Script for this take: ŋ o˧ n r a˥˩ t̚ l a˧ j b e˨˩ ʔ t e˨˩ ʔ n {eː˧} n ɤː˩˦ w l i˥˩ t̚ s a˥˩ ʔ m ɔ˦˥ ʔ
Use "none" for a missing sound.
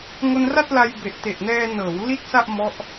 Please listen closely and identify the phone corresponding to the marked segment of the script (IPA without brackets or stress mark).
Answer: ɛː˧